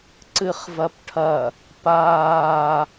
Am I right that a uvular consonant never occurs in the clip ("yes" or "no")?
no